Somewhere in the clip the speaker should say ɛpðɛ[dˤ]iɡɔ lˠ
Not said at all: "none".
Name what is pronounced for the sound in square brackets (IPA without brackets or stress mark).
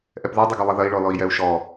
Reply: dˤ